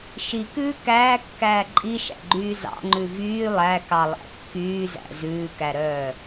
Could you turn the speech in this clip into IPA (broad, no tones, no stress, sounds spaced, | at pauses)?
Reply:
ʃ i k ʉː k æː kː æː ǃʼ i ʃ æ̰ ɡ͡ǃ yː z ɑ̰ ŋ͡ǃ ʉ v yː lˠ æ k ɑ lˠ æ̰ kː yː z æ̰ z ʉː k æ ɾ œː